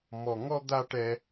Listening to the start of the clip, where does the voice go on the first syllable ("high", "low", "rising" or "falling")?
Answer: high